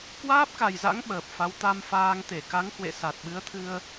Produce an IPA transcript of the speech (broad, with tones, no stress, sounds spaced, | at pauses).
k w aː˦˥ p̚ k a˨˩ j z a̰˧˥ ŋ ɓ əː˨˩ p̚ f a˨˦ w t̪ a˧ m f aː˧ ŋ t̪ e˧˩ k a˨˦ ŋ h w ḛ˧˨ s a˨˩ t̚ ɓ ɨ˨˦ ə̯ t̪ʰ ɨ˧ ə̯